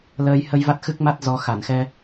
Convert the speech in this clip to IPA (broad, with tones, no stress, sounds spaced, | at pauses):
l əː˧ j h ə˧ j v a˦˥ t̚ x ɨ˦˥ k̚ m a˦˥ t̚ z ɔ˨˦ x a˧˩ n x ɛ˧